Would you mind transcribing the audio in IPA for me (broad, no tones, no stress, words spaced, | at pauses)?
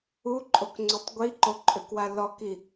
uǃʼokŋ͡ǀøtˤ ɡʷiǃoǃʼøkwa lɔki